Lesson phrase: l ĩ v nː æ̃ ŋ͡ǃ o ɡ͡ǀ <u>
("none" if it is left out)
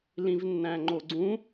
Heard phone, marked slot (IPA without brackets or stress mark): ũ